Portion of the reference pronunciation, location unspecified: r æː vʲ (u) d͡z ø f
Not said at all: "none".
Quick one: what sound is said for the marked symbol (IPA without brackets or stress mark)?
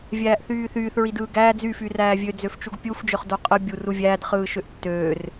ø